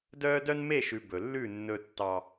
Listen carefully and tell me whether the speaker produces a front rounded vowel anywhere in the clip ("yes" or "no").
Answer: yes